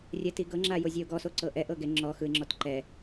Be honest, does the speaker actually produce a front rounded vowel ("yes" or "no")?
no